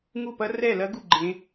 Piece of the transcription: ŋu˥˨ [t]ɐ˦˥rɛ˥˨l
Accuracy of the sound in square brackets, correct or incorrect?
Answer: incorrect